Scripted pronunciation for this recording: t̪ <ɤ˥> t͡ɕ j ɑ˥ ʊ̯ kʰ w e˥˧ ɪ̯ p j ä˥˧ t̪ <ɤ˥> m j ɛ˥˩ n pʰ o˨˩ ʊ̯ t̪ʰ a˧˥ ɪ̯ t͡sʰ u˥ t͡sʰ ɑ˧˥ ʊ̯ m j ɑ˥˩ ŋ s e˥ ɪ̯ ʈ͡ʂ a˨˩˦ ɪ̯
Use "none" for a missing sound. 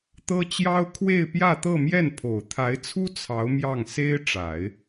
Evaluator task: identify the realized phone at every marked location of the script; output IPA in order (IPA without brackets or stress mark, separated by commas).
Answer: ɤ˥, ɤ˥˧